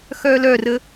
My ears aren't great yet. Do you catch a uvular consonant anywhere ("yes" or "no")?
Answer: no